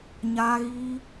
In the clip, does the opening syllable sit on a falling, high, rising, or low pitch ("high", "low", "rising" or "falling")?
high